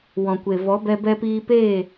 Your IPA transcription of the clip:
w ɔ̃˨ kʷ e˨ v ɔ˨˦ b ɛ˧ b ɛ˧ p iː˧ p eː˦˨

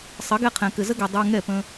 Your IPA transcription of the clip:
sˤ ɘ˨˦ ɡ ɛ˧ qʰ ɛ̃˨ k ɘ˨ z ə˦ ɡ ɛ˨ dˤ ə˞˧ ŋ ɛ˦˨ p ə̃˧

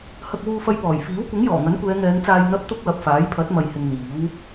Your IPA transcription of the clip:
h ɐ˧ k̚ w uː˧ f ɐ˧ j p ɔː˨˩ j f iː˨˥ w kʷ ɪ˨˥ ŋ j ɔː˨˩ ŋ ɐ˨˥ n kʷ ɛː˨˧ ŋ ɛː˨˧ ŋ t͡s aː˧ j n̪ ɐ˥ p̚ t̪ ʊ˥ k̚ w ɐ˨ p̚ f aː˨˥ j pʰ ɐ˨˥ t̚ m ɐ˨ j h ɪ˨ ŋ n̪ iː˨˥ w

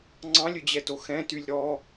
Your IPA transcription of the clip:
ŋ͡ǀ ɑ̃ lʲ ɵ d͡ʑ ɛ t o x ɛ̃ t y lʲ ɾ ɔ

